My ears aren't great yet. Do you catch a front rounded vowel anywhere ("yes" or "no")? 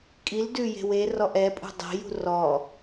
no